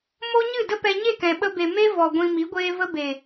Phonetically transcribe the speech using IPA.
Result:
m o˦ ɲ ɨ˦˨ d ə˦ p ɛ˧ ɲ e˦˨ k ɛ̃˨ ɓ ə˧ b e˨ m e˦ v ɔ˨ ɡʷ ĩ˧ m i˨˦ ɡʷ eː˦ v ə˦ b e˨

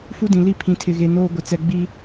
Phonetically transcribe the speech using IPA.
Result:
f u˦ d ĩ˨ l i˦˨ pʰ ĩ˨ tʰ ɪ˨ ɣ e˨ n oː˦ ɡʷ ɪ˨ t͡s ɛ˨ ɡ͡b i˦

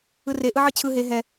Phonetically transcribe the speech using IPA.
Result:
ɯ r e ʔ ɯ ʕ ɯ t͡ɕʰ ɯ ɦ e ɦ ɛ

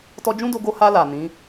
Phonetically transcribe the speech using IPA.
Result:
t ɔ˧ d͡ʒ ũ˦ d o˧ ɡ o˧ h a˧ l a˨ n ĩ˨˦

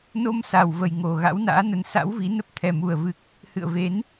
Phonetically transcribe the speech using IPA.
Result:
n o˧ m s a˨˩ w v ə˨˩ j ŋ o˨˩ ɣ a̰˧˥ w n a̰ː˧˥ n ə˨˦ n s a̰˧˥ w v i˨˦ n ə˦˥ p̚ t̪ʰ ɛ˨˩ m u˨˩ ə̯ v ɨ˨˩ k̚ | h ɨ̰˧˨ ə̯ v e˨˦ n

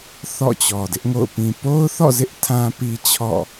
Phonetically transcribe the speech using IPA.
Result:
θ ɔ̰˦˨ t͡ɕ ɔ˨ d ɪ˦ ʔ ŋ o̰˦˨ ʊ̯ p ĩ˨ p o˦ ʊ̯ θ ɔ̰˦˨ z ɪ˦ ʔ tʰ ã˦ p i˦ t͡ɕʰ ɔ̰˦˨

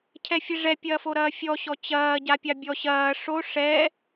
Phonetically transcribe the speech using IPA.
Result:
cʰ ɛ fʲ e ʐ ɛ pʲ ɐː f o ɾ ɐː fʲ ɔ ɕ ɔ t͡ɕ ɐː ɟ a pʲ ɑ bʲ ɔ ɕ ɐː ʂ o ʂ ɛ

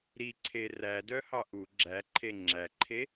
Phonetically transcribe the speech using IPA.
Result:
ɾ i ǀʰ e r æ d œ h ɑ ʔ u ɡ͡ǁ æ ǃʰ e ŋ͡ǁ æ ǃʰ e

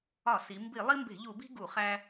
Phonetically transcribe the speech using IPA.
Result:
ɒ˧˩˧ s i˩˧ m b i˧˩˧ lˠ i˦ m b e̤˧˩˧ ʎ u˧˩˧ b i̤˦ ɡ u˧˩˧ χ æ˦

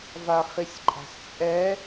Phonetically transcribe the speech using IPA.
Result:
v a χ i sʲ ǃʼ a̤ s t͡sʼ ɛ

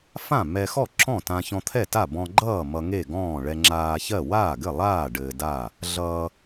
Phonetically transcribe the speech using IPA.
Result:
f ã˥˩ m ɛ˧ x ɔ˥˩ ǁ ɔ̃˥˩ t ã˧ ç ɔ̃˧ t̪ʰ ɛ˥˩ t a˥˩ b ɔ̃˧ ɡ͡ǃ ʌː˥˩ m ʌ˧ ŋ e˥˩ ɡ ɔ̃ː˥˩ ɭ ɛ˧ ŋ͡ǁ aː˧ ç ɜ˥˩ w aː˥˩ ɡ ɘ˥˩ lˠ aː˥˩ ɖ ɘː˧ d aː˥˩ | ɮ ʌː˧

